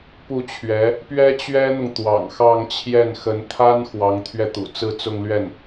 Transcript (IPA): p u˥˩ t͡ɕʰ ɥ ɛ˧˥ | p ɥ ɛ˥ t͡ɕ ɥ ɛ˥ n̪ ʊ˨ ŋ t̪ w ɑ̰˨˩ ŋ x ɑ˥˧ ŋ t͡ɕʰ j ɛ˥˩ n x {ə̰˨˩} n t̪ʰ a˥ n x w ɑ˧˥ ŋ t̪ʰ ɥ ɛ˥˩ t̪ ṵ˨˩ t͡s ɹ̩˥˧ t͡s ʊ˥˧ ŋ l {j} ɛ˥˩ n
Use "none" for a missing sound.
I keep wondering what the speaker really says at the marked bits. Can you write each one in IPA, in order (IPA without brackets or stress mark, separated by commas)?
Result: ə˧˥, ɥ